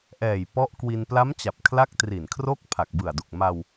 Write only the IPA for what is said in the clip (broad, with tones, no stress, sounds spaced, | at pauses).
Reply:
ʔ ɛː˨˩ j p ɔ˦˥ ʔ k w i˧ n p l a˦˥ m t͡ɕ a˨˩ p̚ kʰ l a˦˥ k̚ t r i˨˩ n kʰ r o˥˩ k̚ pʰ a˨˩ k̚ b ɯ˨˩ a̯ d u˨˩ k̚ m a˧ w